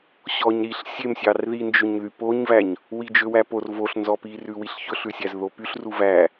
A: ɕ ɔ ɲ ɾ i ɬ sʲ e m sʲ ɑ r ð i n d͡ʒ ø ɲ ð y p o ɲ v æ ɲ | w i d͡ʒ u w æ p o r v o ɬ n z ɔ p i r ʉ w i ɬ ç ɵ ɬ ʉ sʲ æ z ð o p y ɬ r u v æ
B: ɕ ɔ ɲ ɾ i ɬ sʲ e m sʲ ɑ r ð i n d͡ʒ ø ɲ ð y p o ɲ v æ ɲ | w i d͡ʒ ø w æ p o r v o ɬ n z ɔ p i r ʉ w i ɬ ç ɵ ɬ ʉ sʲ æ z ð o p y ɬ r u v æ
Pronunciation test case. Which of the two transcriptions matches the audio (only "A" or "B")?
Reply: B